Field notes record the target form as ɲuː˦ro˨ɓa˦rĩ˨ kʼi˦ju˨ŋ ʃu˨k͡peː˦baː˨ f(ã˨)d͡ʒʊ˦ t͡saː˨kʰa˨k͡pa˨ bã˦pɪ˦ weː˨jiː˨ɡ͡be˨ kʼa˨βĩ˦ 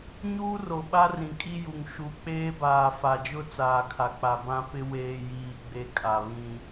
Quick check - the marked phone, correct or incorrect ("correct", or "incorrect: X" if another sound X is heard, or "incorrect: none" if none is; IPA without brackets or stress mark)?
incorrect: a˨